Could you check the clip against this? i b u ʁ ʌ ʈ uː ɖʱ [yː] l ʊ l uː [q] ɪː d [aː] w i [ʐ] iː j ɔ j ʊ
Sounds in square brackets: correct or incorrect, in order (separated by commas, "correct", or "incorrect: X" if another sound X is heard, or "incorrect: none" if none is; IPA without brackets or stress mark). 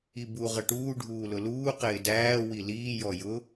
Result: incorrect: uː, correct, incorrect: æː, incorrect: l